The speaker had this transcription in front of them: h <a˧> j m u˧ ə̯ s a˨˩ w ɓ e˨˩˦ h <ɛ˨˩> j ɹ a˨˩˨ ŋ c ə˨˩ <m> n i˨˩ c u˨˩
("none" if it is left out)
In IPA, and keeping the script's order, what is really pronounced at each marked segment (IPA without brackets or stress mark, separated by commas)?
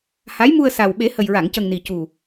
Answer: a˧˥, ə˨˩, ŋ